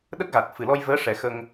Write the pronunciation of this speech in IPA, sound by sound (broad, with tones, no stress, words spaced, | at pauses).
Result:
ɗə˦˥k̚ɣa˨˩t̚ fɨ˨˩lɔ˧j vəː˧˥ʂɛ˨˩˦xə˧ŋ